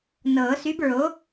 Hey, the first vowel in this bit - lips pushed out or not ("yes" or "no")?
no